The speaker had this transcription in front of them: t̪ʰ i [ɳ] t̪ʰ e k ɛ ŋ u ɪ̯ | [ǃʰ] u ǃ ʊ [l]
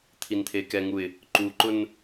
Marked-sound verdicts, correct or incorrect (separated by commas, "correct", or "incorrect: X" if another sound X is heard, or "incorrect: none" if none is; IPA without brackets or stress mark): incorrect: n, incorrect: ǃ, incorrect: n